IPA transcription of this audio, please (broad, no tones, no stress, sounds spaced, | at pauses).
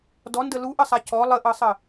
d ɔ n d ə l u ʔ ə sˤ a c ɔ lˠ ə ʔ ɤ sˤ ə